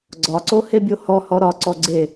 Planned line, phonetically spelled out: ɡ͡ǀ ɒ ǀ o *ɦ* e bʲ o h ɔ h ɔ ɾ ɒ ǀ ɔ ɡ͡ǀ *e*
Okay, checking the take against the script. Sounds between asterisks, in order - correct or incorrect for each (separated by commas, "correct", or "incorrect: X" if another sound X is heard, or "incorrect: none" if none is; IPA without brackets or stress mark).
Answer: incorrect: h, correct